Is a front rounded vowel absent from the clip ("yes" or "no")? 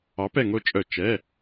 no